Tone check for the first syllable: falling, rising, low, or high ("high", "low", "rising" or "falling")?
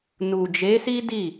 low